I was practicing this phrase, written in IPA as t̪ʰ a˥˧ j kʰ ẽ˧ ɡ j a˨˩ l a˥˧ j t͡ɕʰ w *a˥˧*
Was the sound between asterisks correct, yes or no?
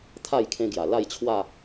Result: yes